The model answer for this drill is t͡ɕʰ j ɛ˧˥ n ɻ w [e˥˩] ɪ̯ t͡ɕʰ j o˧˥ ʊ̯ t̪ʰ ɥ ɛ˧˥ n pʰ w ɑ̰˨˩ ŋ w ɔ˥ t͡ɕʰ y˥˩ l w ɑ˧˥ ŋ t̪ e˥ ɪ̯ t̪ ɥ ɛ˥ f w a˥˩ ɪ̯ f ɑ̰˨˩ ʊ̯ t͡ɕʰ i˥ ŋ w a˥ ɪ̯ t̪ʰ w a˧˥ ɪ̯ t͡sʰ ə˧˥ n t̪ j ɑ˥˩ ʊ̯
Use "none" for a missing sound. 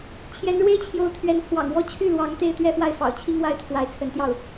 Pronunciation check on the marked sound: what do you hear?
e˥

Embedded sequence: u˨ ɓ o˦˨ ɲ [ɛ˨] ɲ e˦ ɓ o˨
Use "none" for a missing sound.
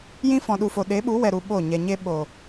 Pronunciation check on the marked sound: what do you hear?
ɛ˨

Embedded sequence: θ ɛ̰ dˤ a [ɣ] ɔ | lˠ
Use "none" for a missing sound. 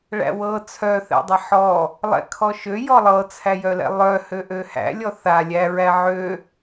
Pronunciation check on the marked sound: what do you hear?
ħ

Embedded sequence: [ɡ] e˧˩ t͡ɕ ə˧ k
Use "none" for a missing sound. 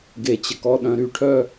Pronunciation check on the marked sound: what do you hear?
ɡ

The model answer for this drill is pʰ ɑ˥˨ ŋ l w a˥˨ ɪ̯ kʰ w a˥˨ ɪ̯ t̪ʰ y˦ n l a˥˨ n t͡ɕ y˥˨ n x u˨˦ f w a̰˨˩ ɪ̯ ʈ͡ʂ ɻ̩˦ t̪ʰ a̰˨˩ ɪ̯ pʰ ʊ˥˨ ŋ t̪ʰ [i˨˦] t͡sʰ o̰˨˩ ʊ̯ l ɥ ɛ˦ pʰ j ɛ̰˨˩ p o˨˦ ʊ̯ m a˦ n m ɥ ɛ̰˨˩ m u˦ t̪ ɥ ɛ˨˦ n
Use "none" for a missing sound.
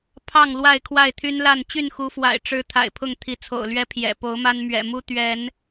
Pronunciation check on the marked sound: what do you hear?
i˨˦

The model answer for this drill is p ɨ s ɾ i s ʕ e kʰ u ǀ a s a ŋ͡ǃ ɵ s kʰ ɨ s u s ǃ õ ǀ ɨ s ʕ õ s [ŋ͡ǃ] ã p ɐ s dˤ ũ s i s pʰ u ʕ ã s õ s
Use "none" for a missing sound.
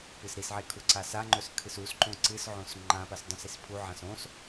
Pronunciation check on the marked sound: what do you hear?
ŋ͡ǃ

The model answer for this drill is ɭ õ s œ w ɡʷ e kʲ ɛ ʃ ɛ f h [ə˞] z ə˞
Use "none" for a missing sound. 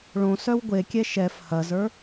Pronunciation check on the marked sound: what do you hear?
ɐ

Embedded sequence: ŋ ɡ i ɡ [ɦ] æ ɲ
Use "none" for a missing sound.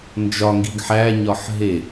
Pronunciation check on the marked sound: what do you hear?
ħ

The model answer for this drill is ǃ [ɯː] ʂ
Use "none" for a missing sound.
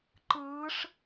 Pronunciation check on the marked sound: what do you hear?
ɯː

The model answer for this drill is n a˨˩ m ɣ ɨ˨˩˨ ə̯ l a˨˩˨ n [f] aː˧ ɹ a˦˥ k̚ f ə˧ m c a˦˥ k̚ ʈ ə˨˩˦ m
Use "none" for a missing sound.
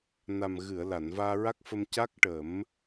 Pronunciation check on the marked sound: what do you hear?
v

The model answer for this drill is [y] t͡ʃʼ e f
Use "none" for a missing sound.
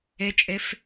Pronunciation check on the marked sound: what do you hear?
e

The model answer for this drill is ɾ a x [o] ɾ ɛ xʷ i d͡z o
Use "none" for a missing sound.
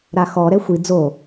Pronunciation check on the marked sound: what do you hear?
ɔ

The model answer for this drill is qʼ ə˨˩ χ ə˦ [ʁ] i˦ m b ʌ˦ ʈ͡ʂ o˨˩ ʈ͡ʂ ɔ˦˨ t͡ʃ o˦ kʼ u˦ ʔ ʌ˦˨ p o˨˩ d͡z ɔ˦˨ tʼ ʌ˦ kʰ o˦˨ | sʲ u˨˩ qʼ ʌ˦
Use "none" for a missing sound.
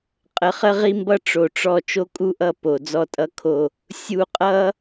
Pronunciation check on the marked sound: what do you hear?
ʁ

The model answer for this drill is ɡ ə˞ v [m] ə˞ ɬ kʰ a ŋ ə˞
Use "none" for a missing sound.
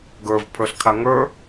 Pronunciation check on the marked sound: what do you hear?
pʰ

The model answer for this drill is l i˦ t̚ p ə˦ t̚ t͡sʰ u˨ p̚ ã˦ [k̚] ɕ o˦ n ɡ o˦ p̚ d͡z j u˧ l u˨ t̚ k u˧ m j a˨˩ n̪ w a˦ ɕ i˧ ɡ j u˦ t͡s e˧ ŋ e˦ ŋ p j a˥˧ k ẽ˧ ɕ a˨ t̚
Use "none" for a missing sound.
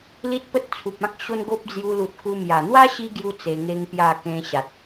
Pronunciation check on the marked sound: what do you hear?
k̚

